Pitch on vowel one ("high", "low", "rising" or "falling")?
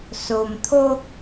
low